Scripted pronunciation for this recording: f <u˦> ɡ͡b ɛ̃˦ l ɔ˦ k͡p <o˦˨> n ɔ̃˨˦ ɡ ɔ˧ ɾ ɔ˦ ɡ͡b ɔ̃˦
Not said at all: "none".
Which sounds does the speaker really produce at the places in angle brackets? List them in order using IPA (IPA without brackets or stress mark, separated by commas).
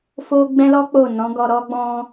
o˦, o˦˨